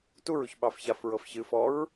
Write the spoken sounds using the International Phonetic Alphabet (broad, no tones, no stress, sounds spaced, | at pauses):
t u ɹ u ç ɓ ɑ f ç a f ɹ ɤ f ç ɨ f ɔ ɹ